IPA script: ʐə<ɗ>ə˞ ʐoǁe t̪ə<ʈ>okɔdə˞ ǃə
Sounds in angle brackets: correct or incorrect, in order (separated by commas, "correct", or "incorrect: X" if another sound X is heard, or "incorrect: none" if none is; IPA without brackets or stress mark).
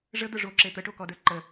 incorrect: d̪, correct